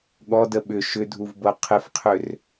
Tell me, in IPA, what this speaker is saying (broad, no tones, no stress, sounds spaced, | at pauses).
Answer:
ɠ ɔ d ə ɓ ʏ ʃ ʏ dʱ u v b ɤ qʰ ɪ f qʰ ʏ r